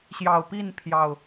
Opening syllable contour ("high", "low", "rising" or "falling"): low